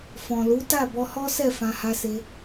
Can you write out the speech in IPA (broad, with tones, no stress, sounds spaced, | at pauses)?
f ɔ̃˨ l u˨˦ t a˦˨ b ɔ˧ h ɔ˦ s ɛ˦˨ f ã˧ h a˧ s e˧